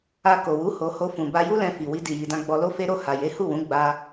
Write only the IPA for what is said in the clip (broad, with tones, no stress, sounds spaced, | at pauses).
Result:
a˧ k o˨ w u˨˦ h o˧ h o˧ f ũ˨ b a˧ j u˦ l ɛ̃˧ f i˨ w i˧ d i˨ j i˨ d ã˧ ɡ͡b ɔ˧ l o˦ f e˦ ɾ o˦˨ h a˨ j e˨˦ h u˦˨ w ũ˨˦ ɡ͡b a˧